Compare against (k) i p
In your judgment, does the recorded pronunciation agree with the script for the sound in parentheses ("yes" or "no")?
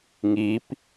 no